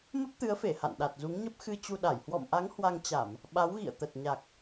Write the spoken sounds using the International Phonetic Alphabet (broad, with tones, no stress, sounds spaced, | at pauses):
m ə˦˥ p̚ t̪ ɨ˨˦ ə̯ f e˧˩ h a̰˧˨ n ɗ a˨˩ t̚ z u˨˦ ŋ ɲ ə˦˥ p̚ x ɨ˧ t͡ɕ u˧ ɗ a˧˩ j h w ɔ̰˧˨ m ʔ a˨˦ ŋ h w a˧ ŋ t͡ɕ a˧˩˨ m | ɓ a˨˦ w ɣ ḭ˧˨ ə̯ t̪ ə˨˩ t̚ ɲ a˨˩ k̚